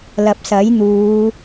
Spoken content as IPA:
l ɐ˨ p̚ s ɐ˨˥ j n̪ uː˨˧

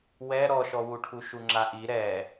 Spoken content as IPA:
w ɛ ɾ ɔ ʃ ɔ w u ʈʰ u ʃ u ŋ͡ǁ a ʔ i ɾ ɛ

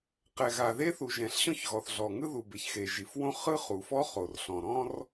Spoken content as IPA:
q ɛ˩ ɣ a˩ ð e˥ θ u˩ ʒ ɛ̃˩ ɬ ɕ ɔ̃˥ ç ɣ ɔ˩ θ ɮ ɔ˩ ŋ ɯ˥ ð u˩ b e˩ ç x e˩ ʒ i˩ f w õ˥ χ ɯ˥ χ u˩ f ɔ˥ χ o˩ r ɬ ɔ̃˩ ɾ ɔ̃˥ r

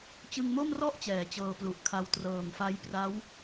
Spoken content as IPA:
t͡ɕ ɯ˧ ŋ m o˥˩ m r ɔ˥˩ ʔ t͡ɕ ɛː˩˦ t͡ɕ ɤː˧ p l u˨˩ ʔ kʰ a˧ w t r ɤː˨˩ ŋ f a˦˥ j p r a˦˥ w

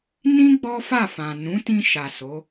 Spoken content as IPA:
n ĩ˦ ɡ͡b ɔ˦ f a˦˨ f ã˨ n ũ˨˦ t ĩ˧ ʃ a˨ s o˨˦

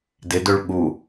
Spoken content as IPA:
d ɪ d ø ɭ ɠ u

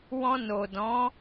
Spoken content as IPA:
w ɔ̃˧ n o˨ d ɔ̃˨˦

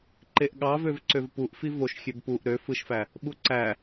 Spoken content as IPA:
ǃ e ʔ ɠ ɑ v ø v ǀ ø v p u ʔ f i v o ʃ xʲ ø b p u ʔ ɾ ø f ɯ ʃ f æ | ɓ u ǀ æ

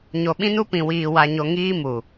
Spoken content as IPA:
ɲ o˨ ɓ ĩ˦ n u˦ p ĩ˨ w iː˨ w a˨ ɲ o˨ ŋ iː˦ m u˨

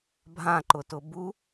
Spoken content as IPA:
bʱ ã ǃ ʊ t ʊ b u

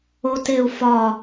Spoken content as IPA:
o t e u̯ f ɒ

